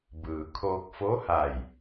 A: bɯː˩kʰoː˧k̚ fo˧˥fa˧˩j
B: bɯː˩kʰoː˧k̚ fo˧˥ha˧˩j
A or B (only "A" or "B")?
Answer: B